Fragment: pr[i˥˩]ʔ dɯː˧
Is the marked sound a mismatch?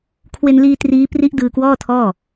yes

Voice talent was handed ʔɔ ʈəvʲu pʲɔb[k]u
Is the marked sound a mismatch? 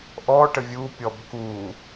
no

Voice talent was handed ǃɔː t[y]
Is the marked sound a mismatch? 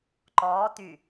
no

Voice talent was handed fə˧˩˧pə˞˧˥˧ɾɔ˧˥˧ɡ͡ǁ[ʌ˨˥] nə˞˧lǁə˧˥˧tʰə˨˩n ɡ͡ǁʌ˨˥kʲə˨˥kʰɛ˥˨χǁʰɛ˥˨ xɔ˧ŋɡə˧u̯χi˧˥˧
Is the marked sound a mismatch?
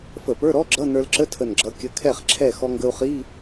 yes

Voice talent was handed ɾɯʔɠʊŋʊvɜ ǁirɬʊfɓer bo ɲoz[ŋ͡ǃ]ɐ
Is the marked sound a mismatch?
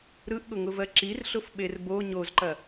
yes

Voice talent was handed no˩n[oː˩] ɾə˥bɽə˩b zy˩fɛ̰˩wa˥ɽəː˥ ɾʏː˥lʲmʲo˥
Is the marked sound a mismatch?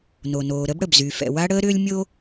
no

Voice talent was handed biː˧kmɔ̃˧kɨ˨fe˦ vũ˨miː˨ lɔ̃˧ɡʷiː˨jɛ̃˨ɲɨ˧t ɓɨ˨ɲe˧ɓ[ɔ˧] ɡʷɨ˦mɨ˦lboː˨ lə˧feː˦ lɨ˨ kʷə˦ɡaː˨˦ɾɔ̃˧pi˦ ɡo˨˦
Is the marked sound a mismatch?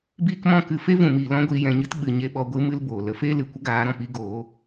no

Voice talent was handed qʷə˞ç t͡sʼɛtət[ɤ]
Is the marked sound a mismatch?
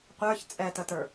yes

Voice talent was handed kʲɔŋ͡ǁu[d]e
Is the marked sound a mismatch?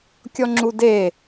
no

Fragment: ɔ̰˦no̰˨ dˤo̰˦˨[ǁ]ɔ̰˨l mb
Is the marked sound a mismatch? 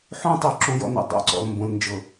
yes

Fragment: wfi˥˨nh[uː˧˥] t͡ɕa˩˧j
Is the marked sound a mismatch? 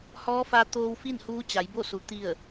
no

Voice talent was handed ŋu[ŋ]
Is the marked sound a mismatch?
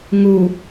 yes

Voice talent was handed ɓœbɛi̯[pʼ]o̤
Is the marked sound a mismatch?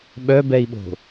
yes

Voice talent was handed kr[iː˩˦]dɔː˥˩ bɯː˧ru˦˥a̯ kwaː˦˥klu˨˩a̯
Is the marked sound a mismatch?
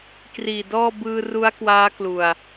yes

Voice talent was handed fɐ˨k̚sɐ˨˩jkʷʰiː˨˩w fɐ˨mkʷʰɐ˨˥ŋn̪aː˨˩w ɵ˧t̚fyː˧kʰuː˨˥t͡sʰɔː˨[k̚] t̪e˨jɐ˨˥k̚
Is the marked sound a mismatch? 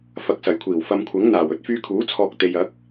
no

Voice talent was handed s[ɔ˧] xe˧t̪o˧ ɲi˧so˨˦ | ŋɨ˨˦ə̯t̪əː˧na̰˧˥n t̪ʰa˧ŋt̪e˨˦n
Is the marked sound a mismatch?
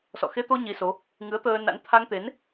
yes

